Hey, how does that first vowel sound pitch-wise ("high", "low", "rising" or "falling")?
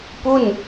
falling